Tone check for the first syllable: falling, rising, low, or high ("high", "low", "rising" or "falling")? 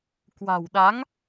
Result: low